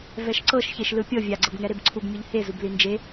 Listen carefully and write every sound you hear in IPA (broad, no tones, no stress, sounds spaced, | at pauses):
v ɛ ʃ ǀ ɤ ʃ ç e ʃ l ɯ pʲ ɤ vʲ a ɡ͡ǀ ɤ b ŋ ɛ ɾ e b ǀʰ u b mʲ ɯ ʎ h e z u b l i n d͡ʒ e